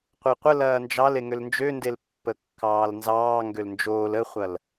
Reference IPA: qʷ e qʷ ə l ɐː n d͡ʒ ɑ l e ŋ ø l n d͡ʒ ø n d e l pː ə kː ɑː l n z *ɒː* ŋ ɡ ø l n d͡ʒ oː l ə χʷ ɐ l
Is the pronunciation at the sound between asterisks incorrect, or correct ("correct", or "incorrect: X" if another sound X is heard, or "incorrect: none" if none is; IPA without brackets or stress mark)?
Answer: incorrect: ɑː